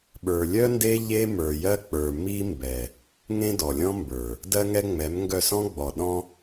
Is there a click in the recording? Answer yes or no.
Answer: no